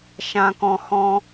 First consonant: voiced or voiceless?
voiceless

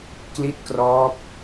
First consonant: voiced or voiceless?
voiceless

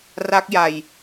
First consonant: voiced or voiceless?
voiced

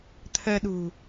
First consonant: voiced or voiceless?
voiceless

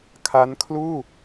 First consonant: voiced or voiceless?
voiceless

